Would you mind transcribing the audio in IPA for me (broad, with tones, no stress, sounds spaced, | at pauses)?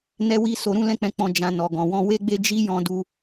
n ɛ˦ w i˦ s o˧ ɾ ũ˦ l ɛ̃˦ k͡p ɛ̃˧ k͡p ɔ̃˧ d͡ʒ ã˨ n ɔ˨ ɡ ɔ̃˨ w ɔ̃˧ w e˦ ɡ͡b e˦ d͡ʒ i˦ j ɔ̃˧ d u˧